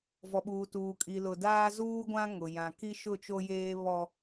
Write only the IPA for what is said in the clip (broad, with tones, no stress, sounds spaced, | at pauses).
v ɔ˨ ɓ uː˨ t uː˨ kʼ i˨ l ʊ˨ d aː˦ z uː˦ ɡʷ ã˦ ŋ ʊ˨ j ã˨ k i˦ ʃ ʊ˦˨ t͡ʃ o˦ j eː˦ β ɔ˦